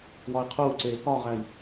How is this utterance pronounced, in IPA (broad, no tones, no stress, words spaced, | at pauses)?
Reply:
wɒi̯qʰuːǀeː kɒʁæi̯